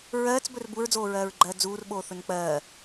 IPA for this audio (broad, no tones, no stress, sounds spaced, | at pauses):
ɹ ɜː t͡s b ɵ r b u ɹ d͡z oː ɹ ɜː ɹ ɡ͡ǃ ɜː d͡z uː r ɓ oː θ ɵ n k͡p ɜː